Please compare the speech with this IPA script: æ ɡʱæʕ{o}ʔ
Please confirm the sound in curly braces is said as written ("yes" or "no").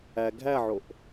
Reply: yes